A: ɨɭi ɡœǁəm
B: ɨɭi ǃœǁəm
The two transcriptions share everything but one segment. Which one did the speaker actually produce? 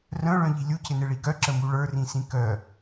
A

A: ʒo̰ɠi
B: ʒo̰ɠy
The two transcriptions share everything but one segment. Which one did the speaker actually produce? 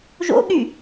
B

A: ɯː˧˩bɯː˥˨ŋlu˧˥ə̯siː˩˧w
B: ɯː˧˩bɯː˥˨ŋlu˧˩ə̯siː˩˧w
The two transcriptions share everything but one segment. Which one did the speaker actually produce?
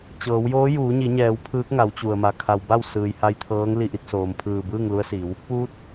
A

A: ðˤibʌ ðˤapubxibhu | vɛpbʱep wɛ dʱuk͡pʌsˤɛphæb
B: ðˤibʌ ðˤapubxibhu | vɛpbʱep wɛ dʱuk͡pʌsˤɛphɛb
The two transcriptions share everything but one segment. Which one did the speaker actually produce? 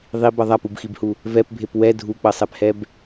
B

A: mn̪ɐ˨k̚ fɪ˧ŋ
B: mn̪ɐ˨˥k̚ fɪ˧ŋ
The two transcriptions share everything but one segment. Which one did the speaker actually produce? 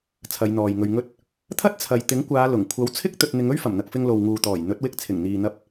A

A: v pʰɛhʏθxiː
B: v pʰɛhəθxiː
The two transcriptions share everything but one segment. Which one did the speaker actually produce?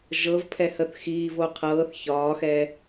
B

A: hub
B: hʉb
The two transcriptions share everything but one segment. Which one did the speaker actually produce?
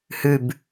B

